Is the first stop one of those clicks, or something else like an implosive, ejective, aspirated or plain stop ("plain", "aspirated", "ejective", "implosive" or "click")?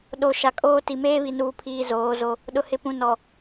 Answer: implosive